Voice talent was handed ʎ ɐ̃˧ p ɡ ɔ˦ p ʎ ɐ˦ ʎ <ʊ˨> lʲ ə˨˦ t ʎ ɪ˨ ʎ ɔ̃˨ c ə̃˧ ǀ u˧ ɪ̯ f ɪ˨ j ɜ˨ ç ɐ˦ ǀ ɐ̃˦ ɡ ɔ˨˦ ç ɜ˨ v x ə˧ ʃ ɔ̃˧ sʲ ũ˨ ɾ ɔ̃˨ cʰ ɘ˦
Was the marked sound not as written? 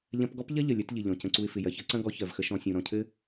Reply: yes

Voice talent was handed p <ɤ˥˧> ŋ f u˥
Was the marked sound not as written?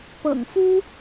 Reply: yes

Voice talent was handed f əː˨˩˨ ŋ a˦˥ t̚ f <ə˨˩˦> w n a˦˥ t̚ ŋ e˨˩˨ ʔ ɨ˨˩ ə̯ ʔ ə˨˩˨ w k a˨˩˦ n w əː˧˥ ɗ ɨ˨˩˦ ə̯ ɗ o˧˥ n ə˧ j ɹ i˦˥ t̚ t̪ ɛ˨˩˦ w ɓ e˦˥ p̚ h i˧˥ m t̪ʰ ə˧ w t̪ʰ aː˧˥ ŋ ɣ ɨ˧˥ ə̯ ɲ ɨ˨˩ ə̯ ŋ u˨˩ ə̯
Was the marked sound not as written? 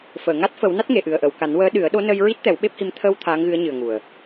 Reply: no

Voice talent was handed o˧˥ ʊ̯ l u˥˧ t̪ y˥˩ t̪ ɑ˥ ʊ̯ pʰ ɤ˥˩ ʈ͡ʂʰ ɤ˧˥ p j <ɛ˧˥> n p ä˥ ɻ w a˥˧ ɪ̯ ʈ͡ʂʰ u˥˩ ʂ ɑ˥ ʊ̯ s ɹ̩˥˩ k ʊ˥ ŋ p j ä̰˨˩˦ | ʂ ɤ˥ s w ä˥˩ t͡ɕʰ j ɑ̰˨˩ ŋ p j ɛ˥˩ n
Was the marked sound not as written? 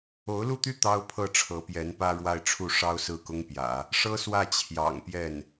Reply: no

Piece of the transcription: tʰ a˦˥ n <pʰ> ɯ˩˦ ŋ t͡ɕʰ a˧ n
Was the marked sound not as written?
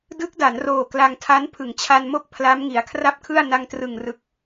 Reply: no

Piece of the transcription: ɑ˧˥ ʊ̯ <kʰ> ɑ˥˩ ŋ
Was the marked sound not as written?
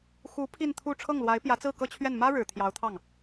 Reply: yes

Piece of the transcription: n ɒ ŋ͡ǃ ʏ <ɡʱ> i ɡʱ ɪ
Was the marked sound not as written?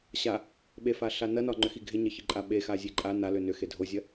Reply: yes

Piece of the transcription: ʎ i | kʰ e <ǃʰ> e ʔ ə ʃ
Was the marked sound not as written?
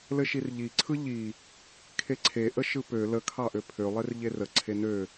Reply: yes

